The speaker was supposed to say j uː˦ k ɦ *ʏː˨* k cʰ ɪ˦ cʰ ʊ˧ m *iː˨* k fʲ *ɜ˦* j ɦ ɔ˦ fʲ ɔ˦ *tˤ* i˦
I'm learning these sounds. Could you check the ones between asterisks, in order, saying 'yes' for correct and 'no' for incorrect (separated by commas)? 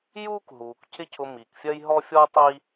no, yes, yes, yes